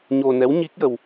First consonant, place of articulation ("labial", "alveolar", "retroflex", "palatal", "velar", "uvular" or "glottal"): palatal